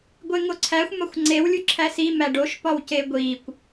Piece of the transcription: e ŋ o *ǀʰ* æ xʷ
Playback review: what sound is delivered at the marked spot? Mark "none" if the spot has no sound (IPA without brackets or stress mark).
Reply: ǀʰ